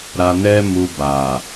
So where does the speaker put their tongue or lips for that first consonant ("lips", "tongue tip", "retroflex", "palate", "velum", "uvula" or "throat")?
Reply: tongue tip